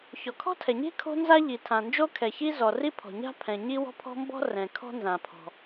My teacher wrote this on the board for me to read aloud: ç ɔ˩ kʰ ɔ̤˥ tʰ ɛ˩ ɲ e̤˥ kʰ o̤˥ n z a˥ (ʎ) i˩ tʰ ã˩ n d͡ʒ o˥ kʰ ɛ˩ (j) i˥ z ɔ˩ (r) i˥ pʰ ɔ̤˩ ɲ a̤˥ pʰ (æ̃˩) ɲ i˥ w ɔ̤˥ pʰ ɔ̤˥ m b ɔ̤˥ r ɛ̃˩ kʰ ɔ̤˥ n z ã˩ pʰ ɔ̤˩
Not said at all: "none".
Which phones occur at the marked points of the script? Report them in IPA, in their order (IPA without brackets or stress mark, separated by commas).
ʎ, ç, r, ɛ̃˩